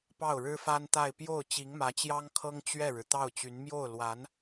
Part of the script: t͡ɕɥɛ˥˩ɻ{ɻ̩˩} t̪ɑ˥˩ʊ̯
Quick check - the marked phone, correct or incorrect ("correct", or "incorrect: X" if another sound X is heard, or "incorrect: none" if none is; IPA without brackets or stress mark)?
correct